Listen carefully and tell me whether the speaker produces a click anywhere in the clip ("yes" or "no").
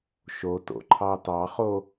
yes